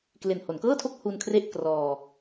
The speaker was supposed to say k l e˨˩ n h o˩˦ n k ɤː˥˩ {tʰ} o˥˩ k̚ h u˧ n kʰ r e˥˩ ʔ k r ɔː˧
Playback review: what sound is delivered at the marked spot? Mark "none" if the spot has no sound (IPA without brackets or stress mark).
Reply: tʰ